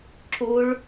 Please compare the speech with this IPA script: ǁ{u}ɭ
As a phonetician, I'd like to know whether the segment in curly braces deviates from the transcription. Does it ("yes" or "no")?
no